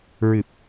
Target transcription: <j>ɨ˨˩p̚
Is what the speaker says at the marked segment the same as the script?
no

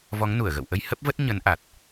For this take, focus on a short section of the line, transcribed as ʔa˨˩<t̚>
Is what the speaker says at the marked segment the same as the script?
yes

